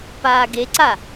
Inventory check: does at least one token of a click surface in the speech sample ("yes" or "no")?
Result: yes